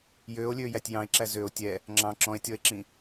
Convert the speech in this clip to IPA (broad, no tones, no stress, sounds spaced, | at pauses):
j øː o̯ lʲ øː j æ tʲ j ɑ̃ e̯ ǁ æ z ø o̯ tʲ ɛ | ŋ͡ǁ ɑ̃ ǁ ɔ̃ e̯ tʲ ɔ e̯ ǁ ĩ